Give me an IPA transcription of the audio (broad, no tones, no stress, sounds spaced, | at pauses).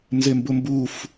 n z e m b ʊ m b u f